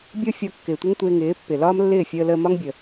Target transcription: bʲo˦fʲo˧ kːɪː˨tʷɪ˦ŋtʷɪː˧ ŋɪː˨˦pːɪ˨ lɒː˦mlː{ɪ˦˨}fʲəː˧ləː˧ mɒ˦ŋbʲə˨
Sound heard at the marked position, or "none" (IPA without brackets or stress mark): ɪː˦˨